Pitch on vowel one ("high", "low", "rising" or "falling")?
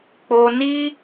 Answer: high